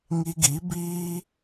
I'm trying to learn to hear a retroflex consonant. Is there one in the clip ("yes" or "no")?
no